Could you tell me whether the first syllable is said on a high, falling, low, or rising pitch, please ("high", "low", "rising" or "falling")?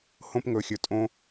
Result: high